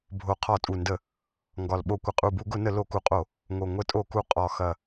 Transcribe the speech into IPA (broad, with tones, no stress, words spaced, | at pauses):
bʱo˨˩ qʰɒ˧˩˧tʼu˨˩ndə˧˩˧ | ŋɡɒ˨˩lɓo˧˩˧kʷə˨˩ qʼu˨˩bu˧˩˧ɡʊ˧˩˧nə˧˩˧ lo˧˩˧ku˨˩qʼo˧˩˧ | ŋo˨˩ ŋʷə˧˩˧tʼo˧˩˧ku˨˩ qʼɒ˨˩xɐ˨˩